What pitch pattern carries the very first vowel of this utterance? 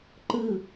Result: falling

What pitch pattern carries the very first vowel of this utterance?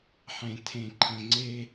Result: low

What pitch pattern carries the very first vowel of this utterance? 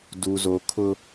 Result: low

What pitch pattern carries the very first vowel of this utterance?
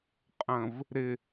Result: low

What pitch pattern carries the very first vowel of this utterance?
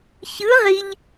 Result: rising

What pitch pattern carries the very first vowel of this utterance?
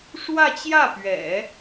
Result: falling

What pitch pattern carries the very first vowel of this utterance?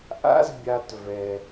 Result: high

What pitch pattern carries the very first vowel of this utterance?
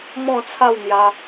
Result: falling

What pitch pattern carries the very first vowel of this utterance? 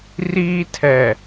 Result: high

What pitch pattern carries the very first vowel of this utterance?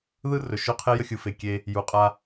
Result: high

